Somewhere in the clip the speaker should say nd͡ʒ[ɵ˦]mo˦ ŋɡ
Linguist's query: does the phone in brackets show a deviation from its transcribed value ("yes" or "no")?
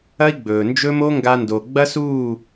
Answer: no